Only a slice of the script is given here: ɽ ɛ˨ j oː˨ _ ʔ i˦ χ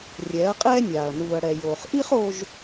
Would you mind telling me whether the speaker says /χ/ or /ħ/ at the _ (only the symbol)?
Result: χ